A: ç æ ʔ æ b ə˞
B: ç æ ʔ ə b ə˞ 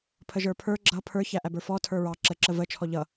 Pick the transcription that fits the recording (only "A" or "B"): A